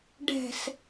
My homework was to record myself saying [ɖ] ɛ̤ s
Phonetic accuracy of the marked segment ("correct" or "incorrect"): correct